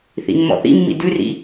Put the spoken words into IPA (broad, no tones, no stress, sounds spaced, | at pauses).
θ ḭ mː ɔ̰ θ ḭ mː ḭ d ʉ r ḭ